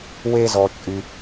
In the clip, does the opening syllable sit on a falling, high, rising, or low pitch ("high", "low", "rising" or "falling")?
high